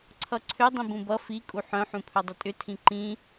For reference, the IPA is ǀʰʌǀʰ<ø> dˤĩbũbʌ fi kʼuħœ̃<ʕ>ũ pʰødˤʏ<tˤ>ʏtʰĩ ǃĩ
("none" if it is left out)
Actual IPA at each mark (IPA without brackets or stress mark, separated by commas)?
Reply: ø, ħ, tʼ